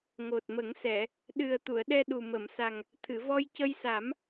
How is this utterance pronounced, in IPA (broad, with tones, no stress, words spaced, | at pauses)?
ŋo˨˩t̚mə˨˩˦ŋsɛ˨˩˨ | ɗɨ˨˩ə̯ t̪u˨˩˨ə̯ɗɛ˧ɗu˨˩ mə˨˩˨msa˨˩ŋ | t̪ʰɨ˨˩˨vɔ˧jcə˧jsa˨˩˦m